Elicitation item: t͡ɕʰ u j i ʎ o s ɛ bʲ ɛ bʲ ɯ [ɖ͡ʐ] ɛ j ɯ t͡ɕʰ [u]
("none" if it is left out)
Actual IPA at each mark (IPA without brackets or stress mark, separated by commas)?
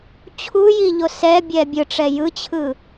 ʈ͡ʂ, ɯ